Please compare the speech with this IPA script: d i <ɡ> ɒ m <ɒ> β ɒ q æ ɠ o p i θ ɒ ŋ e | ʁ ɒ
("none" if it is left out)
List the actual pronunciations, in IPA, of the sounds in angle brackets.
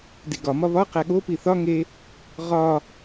ɡ, ɒ

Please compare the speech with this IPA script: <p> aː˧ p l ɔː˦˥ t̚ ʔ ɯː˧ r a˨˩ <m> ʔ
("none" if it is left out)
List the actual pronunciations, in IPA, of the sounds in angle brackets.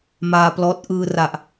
m, none

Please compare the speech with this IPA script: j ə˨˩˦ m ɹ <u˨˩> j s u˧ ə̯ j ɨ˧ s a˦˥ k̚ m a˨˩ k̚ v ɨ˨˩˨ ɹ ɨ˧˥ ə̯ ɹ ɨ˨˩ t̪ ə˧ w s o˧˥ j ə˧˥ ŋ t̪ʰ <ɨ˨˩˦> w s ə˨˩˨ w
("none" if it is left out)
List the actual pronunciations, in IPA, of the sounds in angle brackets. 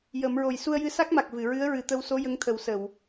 o˨˩, ə˨˩˦

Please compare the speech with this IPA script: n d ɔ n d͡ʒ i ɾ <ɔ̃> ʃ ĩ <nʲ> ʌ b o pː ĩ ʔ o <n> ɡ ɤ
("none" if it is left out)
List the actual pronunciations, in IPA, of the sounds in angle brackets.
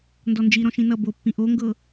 ɔ̃, n, ŋ

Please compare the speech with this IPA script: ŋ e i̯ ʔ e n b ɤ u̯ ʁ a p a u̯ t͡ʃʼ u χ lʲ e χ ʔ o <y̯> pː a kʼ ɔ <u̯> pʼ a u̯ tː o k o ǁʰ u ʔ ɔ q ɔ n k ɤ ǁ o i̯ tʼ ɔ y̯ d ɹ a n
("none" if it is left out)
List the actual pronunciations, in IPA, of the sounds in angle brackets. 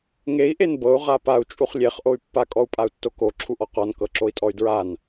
y̯, u̯

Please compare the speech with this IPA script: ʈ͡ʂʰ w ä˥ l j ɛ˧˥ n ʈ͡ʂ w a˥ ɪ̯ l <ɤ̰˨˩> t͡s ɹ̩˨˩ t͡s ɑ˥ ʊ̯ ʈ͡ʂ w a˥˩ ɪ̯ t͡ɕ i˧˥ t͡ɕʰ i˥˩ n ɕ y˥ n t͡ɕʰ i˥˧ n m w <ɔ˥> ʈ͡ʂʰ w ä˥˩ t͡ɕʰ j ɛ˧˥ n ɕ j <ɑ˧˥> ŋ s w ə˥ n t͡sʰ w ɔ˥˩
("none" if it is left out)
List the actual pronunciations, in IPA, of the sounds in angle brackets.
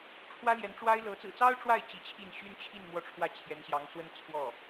ɤ˧˥, ɔ˥˧, ɑ˧˥

